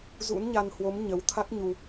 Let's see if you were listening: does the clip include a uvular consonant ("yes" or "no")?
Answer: no